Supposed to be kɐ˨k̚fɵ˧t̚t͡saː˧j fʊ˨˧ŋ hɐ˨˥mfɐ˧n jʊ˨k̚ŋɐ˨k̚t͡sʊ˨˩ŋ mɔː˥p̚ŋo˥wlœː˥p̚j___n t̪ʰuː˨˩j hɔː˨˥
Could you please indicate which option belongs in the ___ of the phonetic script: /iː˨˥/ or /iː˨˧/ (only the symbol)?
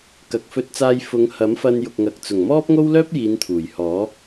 iː˨˧